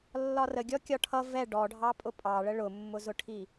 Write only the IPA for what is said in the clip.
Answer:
lː ɒ r ə ɡʲ ɔ kʲ ɒ ʈʰ ʌ v ɛ ɖ ɔ ɖʱ ɑ pʼ ʊ pʼ ɑ ɭ ə ɭ ʊ mː ʊ z ʊ ʈʰ i

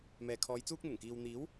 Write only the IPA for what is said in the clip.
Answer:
m ɛː˨ kʰ ɔː˨˧ j t͡s uː˥ k̚ n̪ ʊ˨˩ ŋ k iː˨ w n̪ iː˨˥ w

